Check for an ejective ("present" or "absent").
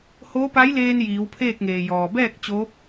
absent